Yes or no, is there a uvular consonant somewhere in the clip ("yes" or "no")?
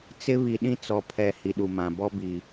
no